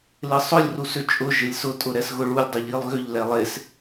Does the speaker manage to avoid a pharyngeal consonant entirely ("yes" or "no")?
yes